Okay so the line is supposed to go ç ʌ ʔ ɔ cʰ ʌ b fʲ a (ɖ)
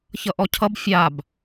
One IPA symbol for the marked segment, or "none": b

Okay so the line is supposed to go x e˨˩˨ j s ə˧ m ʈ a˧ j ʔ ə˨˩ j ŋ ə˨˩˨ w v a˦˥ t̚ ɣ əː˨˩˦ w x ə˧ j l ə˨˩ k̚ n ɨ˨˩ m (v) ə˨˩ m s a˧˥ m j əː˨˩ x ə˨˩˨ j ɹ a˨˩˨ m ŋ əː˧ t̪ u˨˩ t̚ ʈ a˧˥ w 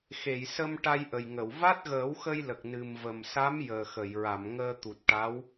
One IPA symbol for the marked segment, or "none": v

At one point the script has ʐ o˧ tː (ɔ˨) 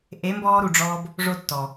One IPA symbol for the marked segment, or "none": ɔ˨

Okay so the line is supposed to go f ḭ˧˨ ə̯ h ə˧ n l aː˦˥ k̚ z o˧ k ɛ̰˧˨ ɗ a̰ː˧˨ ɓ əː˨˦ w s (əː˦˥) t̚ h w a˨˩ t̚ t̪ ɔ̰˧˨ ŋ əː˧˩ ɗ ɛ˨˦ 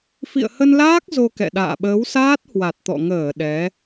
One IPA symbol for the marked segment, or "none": aː˦˥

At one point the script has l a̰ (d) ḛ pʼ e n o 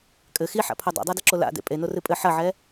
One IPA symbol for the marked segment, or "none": d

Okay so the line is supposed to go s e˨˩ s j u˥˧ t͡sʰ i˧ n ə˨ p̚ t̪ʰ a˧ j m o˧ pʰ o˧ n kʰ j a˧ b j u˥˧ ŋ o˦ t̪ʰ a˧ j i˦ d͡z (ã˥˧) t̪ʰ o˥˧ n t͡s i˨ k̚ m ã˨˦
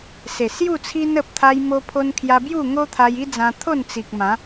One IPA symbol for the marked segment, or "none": ã˧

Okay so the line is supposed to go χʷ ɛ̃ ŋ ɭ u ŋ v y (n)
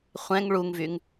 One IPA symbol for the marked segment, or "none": ŋ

